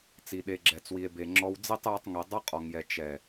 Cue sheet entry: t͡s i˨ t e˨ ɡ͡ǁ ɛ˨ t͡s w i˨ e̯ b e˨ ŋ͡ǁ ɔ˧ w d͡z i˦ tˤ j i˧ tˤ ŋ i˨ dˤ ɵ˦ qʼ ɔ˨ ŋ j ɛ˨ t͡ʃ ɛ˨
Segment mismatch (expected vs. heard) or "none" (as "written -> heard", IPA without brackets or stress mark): t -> ɗ